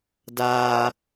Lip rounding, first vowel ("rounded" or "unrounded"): unrounded